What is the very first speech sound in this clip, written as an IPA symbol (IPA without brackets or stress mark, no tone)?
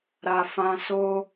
ɾ